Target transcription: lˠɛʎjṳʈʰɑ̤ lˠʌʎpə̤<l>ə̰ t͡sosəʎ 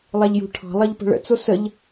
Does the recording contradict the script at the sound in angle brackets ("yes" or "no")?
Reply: yes